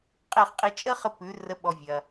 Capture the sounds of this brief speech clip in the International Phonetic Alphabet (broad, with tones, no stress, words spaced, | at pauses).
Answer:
qʼe˥˩χqʼi˧ t͡ʃʼə˥χə˧ pʉ˩˥ rə˩˥ɓɔ˩ vʲɐ˩